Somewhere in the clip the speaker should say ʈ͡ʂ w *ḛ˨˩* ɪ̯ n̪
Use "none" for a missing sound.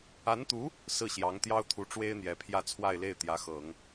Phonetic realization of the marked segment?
e˥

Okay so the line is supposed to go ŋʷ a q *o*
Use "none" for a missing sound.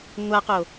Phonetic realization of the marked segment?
o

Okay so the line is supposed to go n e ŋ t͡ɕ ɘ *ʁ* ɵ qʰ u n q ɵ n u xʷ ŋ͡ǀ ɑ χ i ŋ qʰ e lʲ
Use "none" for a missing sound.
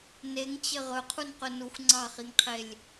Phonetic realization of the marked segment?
ʁ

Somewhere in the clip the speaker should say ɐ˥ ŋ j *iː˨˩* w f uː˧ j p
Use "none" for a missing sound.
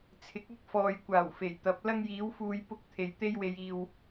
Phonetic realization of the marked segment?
iː˨˥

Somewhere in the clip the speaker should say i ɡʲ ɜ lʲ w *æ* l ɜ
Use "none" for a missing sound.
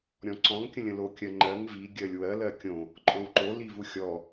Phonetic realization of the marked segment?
ɜ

